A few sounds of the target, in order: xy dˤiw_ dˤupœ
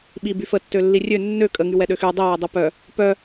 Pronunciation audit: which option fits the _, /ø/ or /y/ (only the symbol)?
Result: ø